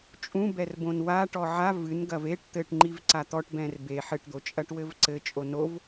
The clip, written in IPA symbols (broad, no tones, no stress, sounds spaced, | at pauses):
t͡ʃʼ ũ b ɛ r b õ n w a ʈ ɔ ʕ a v ɨ n ɡ ɐ v e ʈ t̪ ɘ ʈ ŋ͡ǃ i v ǀ a t̪ ɔ ʈ b ɛ̃ r b e ħ ɘ ʈ d̪ o t͡ʃʼ ɐ ʈ w ɘ v ǀ ɘ t͡ʃʼ o n o v